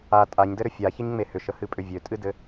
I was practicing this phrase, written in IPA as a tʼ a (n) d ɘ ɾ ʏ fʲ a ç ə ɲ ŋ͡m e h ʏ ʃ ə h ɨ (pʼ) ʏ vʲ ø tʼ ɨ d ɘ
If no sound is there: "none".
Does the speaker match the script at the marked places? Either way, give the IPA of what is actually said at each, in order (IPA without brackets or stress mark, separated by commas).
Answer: ɲ, pʼ